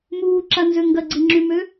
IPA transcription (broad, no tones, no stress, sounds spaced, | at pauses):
m uː ǁ a n z ø ŋ ɡ ɐ ɡ͡ǀ i ŋ͡ǁ y m ø